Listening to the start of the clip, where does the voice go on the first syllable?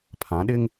rising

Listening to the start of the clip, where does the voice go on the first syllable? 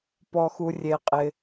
low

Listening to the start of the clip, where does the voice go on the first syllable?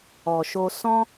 low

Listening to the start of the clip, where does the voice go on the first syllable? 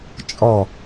falling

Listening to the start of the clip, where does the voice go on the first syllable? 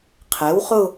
rising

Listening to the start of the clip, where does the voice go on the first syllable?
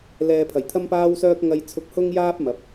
low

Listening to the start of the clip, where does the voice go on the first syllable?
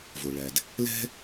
low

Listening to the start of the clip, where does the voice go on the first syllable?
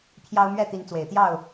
high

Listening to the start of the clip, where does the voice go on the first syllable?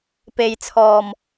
low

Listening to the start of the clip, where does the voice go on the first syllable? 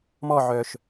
falling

